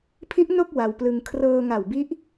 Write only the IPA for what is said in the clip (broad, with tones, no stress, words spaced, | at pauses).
pʰi˦˥ʔ no˥˩k̚ wa˧wplɯ˧ŋ kʰrɤː˧ŋa˨˩wbi˦˥ʔ